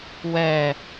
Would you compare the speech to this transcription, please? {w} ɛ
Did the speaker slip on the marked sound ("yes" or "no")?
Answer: no